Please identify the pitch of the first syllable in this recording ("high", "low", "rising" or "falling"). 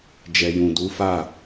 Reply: low